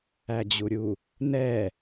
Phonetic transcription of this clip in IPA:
æ d͡ʑ u ɾʲ u | n ɛ

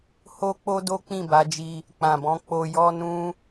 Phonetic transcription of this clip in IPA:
h o˦ k͡p o˦ d o˦ k͡p ĩ˦˨ b a˨˦ d͡ʒ i˧ | k͡p ã˨ b ɔ̃˧ k͡p o˧ j ɔ˦ n ũ˦

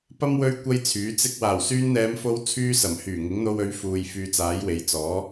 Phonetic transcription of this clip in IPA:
p ɐ˥ m w ɵ˥ ɥ kʷ ɐ˥ j t͡sʰ yː˨˥ t͡s ɪ˧ k̚ w aː˨˩ w s yː˧ n n̪ ɛː˨˧ m f o˧ w t͡sʰ yː˧ s ɐ˨˩ m h yː˨˩ ŋ ɪ˨˥ ŋ n̪ o˧ w ɵ˨˥ ɥ f uː˨ j f yː˧ t͡s aː˨˥ j w e˨˧ j t͡s ɔː˨˥

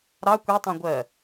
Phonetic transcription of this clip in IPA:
ɾ ɑ kʷ i tˤ ĩ ɡʷ ɜ

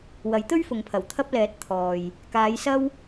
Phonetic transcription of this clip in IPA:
w ɐ˨˥ j t̪ ɵ˥ ɥ f ʊ˨ ŋ pʰ ɐ˨˩ w t̪ʰ ɐ˧ p̚ l ɛː˨˥ t̚ t̪ʰ ɔː˨ j | k aː˨˧ j s ɐ˥ w

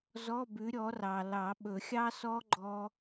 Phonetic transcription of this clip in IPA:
z ɔ˧˥˧ b ʉ˨˥ ɾʲ ɔ˨˥ r ɑ˨ l ɑ˨˩˦ ɓ ɵ˨˩˦ xʲ ɑ˦˥ s ɔ˦˥ ɡ͡ǃ ɔ˦˥

